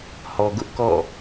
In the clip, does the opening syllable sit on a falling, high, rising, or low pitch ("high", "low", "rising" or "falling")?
low